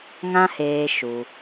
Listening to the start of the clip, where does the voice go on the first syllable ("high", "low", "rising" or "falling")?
high